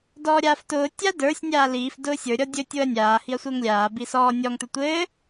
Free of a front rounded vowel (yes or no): yes